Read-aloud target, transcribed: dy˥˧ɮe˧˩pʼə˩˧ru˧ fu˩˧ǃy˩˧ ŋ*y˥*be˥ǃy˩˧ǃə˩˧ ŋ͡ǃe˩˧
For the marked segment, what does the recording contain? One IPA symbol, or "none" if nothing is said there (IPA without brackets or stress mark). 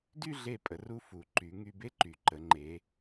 y˧